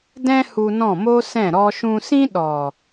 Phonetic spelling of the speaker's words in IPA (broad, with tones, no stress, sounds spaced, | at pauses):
d ɛ̃˦ h u˧ n ɔ̃˦˨ m oː˦ s ɛ̃˦˨ ɾ ɔ˧ ʃ ũ˧ s ĩ˦ ɗ ɔ˨